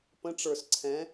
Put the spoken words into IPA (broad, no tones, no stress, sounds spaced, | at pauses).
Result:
p ə̃ ʈ͡ʂ ə˞ s ǀʰ ɛ̃